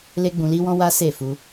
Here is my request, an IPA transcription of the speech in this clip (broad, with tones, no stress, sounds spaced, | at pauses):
l e˦ ɡ͡b ũ˧ l i˦ w ɔ̃˦ w a˦ s e˦˨ f u˧